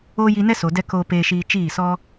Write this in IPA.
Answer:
o˦ j i˧ n ɛ˦ s o˨ d ɛ˧ k oː˧ p eː˧ ʃ iː˧ t͡ʃ iː˦˨ s ɔ˦

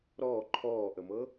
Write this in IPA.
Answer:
ɾ ɔː ǃʰ ɔː ʔ ə m ɤ

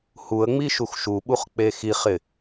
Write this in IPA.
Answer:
h u ə̯ ŋ͡m i ʃ u x ʃ u ɓ u χ k͡p e x i χ ɪ

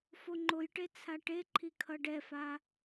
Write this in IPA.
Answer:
f o ŋ͡ǃ o j ʈ e t͡sʰ a ʈ e ǃʰ i kʰ ʌ ɖ ɛ f a

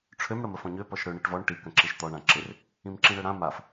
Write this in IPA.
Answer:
ʈ͡ʂʰ ø m ɽ ə m ə f ɔ̃ ɲ ø p ɔ ʃ ɽ ø ɳ i ʈ v ɔ ɳ ʈ i k ə̃ ǁ i ʃ t̪ ɔ ɳ ã ǁ ɪ r | ĩ m ǁ ĩ ɽ ø ɽ ã m a f

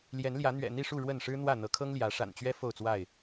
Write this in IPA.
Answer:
l j ɛ˨˦ n l j ä˨˦ n̪ ɥ ɛ̰˨˩ n̪ i˥˨ ʂ u˥˨ ɻ w ə˥˨ n ʂ ɻ̩˦ n̪ w ä˥˨ n̪ ɤ˨˦ kʰ ɤ˦ ŋ l j ä˨˦ ʂ a̰˨˩ n t͡ɕ ɥ ɛ˦ f o˥˨ ʊ̯ t͡s w a˥˨ ɪ̯

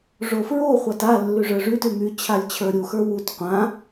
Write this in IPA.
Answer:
ʐ o f ɹ o χʷ a t a lː y ʐ ə˞ ʐ y t y m y t͡ɕʰ a lʲ t͡ɕʰ ə˞ ɾʲ u x ə˞ w u t qʷ ã

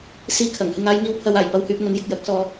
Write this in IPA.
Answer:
s iː˧ kʰ ɐ˨˩ ŋ h ɪ˧ ŋ aː˨˧ j ŋ iː˨ w pʰ ɐ˨ w aː˨˩ j p ɐ˧ w h yː˧ p̚ ŋ ɵ˨˥ n j ɪ˧ k̚ j ɐ˨˥ k̚ s ɔː˧

